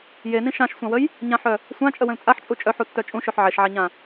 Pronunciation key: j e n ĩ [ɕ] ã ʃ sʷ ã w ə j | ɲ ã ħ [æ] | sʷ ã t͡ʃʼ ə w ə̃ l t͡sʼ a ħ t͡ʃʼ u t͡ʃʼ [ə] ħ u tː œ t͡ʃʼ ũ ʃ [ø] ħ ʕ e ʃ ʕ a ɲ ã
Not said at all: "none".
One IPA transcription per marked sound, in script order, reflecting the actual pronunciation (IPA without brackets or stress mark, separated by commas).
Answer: ʃ, œ, œ, ø